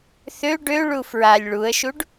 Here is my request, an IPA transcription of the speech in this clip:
θø ɖø ɭufɹalʲ ɭuə̯ʃuɖ

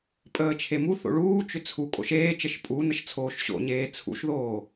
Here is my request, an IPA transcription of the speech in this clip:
pʼəːt͡ʃʰemu θo̰ɭuː t͡ʃʏt͡sʰu kʼo̰ʃeːt͡ʃəʃ pʼu nəʃt͡sʰoːʃɕo̰ɲeː t͡sʰṵʃðoː

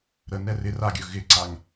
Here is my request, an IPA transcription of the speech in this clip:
ɾənɛ rɪ raɡʲɵ ɣɪǀaŋ

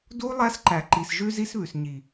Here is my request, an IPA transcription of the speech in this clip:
du˦ lˠæ˦sǃæ˨ǃi˨sʒʉ˦ zi˦sβʉ˨s ɲi˨

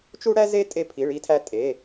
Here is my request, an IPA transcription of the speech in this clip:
t͡ʃu˥ɽæ˥ze˥ tʼe˥pʰi˧˥˧ɭi˥tʰæ˥ tʼe˧˥˧

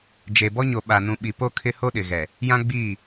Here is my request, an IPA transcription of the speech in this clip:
d͡ʒe˨bɔ˦ɲo˨ ɓa˨nũ˨ɓi˨po˦ kʰɪ˦ho˦ɗɪ˨ɣɛ˨ | jã˦ɡ͡biː˦˨

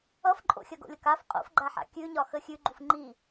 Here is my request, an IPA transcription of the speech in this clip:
ʌfǃʼo̰ xʲɐɡo̰lʲʌkaf qʼo̰fɡ͡ǃaħa̰ kʲʉɲɒ xəxʲʉ ɡ͡ǃufŋ͡ǃi

